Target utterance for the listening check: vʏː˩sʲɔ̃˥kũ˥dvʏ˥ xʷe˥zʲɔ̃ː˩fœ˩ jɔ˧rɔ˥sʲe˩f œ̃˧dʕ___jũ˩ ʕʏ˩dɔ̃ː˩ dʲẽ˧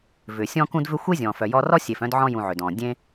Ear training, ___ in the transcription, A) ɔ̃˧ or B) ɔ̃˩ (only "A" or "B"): A